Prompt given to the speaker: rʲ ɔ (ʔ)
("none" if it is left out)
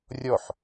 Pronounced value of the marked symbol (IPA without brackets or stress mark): ħ